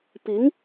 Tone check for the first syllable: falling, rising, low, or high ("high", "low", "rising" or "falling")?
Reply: rising